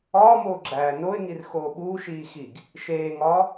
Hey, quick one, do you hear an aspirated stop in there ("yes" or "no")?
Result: no